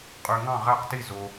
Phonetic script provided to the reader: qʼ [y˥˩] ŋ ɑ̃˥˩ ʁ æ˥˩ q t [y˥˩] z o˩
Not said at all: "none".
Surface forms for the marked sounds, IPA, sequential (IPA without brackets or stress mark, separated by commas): y˩, i˥˩